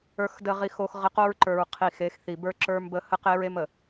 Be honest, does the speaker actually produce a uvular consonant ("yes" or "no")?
yes